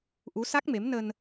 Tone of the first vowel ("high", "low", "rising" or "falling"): rising